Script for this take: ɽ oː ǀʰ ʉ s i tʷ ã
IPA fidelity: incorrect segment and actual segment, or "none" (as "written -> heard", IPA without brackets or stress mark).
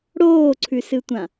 i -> ɨ